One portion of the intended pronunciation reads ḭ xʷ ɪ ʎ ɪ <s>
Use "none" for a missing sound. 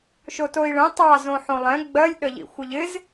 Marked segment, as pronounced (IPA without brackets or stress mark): z